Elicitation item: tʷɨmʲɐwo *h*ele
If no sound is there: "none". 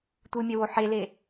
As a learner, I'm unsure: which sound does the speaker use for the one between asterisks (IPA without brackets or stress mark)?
ħ